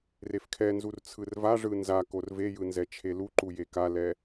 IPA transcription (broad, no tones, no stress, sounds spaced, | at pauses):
r e f kʰ ɛ n z u r t͡sʰ ɯ r v a ʐ ɯ n z a k o r v e j ɯ n z ɛ t͡ʃʰ e l u ǃ u j e k a l ɛ